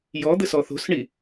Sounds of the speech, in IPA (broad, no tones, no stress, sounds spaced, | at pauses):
j ɔ d̪ ɘ s ɔ θ o̤ s ɳ i